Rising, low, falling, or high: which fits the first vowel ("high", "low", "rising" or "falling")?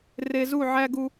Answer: low